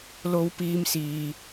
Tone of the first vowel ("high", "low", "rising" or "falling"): high